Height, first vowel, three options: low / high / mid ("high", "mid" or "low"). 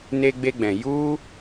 mid